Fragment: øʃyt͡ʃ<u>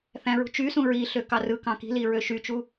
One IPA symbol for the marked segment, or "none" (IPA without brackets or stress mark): u